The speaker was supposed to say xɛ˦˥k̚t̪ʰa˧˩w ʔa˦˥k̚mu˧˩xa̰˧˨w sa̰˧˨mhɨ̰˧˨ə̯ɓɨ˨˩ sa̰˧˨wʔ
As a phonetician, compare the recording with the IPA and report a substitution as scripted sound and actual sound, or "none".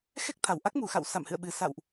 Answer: none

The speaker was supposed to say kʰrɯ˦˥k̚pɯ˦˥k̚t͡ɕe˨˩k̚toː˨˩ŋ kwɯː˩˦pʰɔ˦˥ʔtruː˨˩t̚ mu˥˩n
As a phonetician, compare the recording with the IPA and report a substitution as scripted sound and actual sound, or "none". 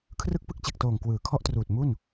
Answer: pʰ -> kʰ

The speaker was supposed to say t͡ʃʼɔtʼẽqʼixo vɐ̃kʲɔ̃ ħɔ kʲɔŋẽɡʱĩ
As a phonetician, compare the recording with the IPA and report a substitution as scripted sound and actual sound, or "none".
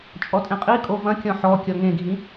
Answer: x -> kʼ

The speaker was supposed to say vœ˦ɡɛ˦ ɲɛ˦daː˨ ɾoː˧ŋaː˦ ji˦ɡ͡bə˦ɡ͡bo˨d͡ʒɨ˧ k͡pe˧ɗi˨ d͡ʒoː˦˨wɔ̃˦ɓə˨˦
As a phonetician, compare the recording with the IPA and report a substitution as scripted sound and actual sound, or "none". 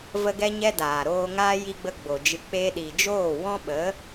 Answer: œ˦ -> ə˦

